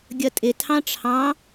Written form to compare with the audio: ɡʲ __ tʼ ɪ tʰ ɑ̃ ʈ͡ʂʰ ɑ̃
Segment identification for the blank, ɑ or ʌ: ʌ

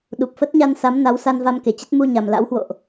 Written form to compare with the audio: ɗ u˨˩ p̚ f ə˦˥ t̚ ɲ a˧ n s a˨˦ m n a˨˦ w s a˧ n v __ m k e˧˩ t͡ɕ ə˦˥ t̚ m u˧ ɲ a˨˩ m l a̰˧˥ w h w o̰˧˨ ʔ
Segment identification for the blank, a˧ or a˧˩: a˧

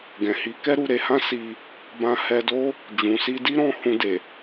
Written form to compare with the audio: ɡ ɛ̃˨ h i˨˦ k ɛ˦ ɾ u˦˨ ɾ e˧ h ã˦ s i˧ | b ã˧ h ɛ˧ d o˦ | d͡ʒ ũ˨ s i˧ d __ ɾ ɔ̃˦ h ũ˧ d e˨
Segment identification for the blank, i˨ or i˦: i˦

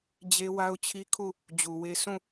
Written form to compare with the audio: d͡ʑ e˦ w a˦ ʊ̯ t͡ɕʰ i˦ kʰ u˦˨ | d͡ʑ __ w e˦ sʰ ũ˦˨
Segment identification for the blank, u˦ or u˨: u˨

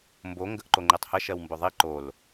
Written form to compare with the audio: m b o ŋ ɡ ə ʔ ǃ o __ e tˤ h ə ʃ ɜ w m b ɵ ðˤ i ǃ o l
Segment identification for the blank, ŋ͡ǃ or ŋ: ŋ͡ǃ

